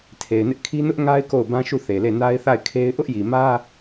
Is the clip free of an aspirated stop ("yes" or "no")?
no